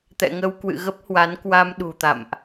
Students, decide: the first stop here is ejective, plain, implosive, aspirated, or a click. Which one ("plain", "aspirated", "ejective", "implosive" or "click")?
plain